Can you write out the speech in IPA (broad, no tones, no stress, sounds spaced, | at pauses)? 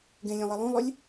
ɡ ẽ lʲ ẽ lˠ ɛ lˠ ũ lˠ ʏ lʲ